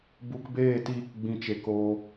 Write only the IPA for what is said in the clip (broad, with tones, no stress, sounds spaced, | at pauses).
b u˧ k b eː˦˨ t iː˧ k ɡ͡b ĩ˨ t͡ʃ e˨ k oː˧